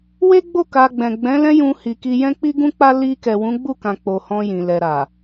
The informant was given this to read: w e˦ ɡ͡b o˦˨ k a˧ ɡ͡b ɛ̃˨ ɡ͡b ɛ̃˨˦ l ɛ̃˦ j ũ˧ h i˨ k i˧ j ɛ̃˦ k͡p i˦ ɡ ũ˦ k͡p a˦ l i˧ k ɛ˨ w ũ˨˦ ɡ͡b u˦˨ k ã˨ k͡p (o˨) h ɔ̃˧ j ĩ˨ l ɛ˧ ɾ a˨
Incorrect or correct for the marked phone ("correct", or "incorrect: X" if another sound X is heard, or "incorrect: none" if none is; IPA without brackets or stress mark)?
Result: correct